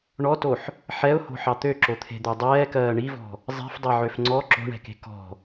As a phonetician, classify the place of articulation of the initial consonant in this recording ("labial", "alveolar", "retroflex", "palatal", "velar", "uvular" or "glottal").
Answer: retroflex